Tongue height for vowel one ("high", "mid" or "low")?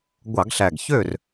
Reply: low